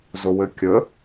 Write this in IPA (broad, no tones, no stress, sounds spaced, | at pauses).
z o w ɘ kʲ ə